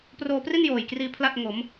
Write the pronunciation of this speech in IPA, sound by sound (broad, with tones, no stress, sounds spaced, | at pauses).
p r oː˧ p r i˥˩ n j oː˨˩ j k r iː˧ pʰ l a˥˩ t̚ ŋ o˩˦ m